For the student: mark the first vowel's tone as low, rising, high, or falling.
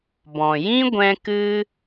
low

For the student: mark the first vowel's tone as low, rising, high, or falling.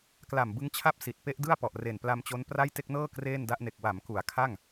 low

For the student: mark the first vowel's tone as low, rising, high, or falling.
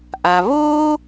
low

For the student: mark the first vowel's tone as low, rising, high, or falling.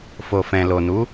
low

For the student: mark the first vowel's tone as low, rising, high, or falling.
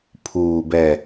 low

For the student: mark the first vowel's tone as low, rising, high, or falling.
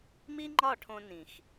high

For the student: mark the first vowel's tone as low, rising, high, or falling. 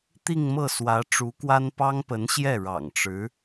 falling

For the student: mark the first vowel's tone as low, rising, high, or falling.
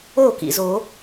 falling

